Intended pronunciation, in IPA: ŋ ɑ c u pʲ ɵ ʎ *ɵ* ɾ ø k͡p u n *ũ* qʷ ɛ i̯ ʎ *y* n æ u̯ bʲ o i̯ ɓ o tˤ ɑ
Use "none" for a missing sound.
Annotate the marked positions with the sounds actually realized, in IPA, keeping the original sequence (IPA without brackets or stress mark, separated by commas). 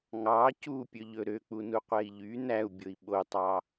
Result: ɵ, u, y